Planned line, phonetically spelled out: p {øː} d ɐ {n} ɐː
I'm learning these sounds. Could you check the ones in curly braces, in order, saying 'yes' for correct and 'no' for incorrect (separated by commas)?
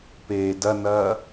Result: no, yes